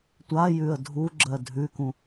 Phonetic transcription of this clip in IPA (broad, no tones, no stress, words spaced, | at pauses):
tʷa jʉə̯dʱuɡ͡ǁɜ dʱʉkũ